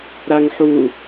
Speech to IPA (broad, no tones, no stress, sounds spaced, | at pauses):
ɾ a ŋ ħ u